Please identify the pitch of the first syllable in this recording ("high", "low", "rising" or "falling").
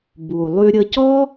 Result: low